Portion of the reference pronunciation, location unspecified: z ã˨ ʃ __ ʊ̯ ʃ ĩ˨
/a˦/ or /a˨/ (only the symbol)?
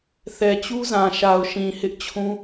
a˨